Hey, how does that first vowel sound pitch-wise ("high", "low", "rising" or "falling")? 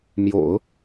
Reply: low